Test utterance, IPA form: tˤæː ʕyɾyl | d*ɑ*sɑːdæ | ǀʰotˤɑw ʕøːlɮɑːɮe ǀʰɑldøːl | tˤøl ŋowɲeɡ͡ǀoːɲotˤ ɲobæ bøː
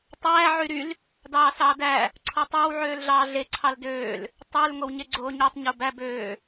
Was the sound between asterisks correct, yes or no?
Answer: no